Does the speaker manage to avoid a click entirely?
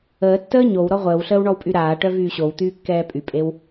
yes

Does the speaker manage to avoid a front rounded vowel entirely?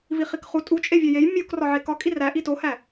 yes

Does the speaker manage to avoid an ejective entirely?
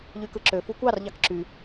yes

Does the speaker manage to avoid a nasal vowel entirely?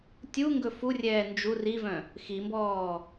no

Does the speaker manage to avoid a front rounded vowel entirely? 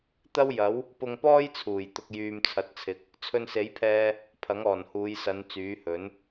no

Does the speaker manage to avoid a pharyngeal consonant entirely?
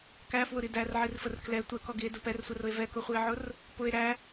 no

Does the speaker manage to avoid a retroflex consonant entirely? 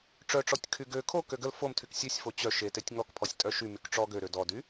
no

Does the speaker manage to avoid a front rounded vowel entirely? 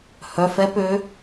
no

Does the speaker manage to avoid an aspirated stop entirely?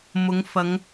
yes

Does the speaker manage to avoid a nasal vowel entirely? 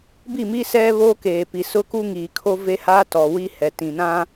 no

